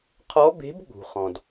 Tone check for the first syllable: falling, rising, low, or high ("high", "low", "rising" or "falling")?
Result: rising